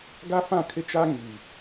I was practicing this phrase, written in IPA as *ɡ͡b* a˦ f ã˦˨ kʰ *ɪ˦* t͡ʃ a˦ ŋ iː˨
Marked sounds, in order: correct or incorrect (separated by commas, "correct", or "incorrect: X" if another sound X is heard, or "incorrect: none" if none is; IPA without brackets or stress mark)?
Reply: incorrect: ɡ, correct